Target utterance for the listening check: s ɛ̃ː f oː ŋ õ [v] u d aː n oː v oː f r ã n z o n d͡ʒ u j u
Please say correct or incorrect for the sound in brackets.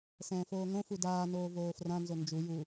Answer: incorrect